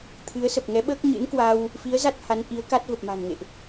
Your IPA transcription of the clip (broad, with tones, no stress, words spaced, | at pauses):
t̪ʰɨ˨˦ə̯sə˨˩p̚ ŋɛ˨˦ɓəː˦˥k̚ɲɨ̰˧˥nkwa˧w | fi˨˦ə̯za˦˥t̚ ha˨˦nʔi˨˦ə̯ka˦˥t̚ və˨˩p̚ma̤˨˩nŋḛ˧˨ʔ